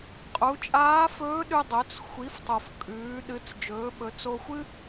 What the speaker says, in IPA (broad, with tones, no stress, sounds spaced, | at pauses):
qʼ u˩˧ t͡ʃʼ aː˧˥ f ɵː˧˥ ɗ ʉ˧ dˤ ɵ˩˧ t͡s xʷ i˩˧ f tˤ o˩ f kʼ ʉː˩˧ ɗ ɨ˩˧ t͡s d͡ʒ ɵː˩˧ ɓ ɵ˩˧ t͡s o˧ xʷ ɨ˥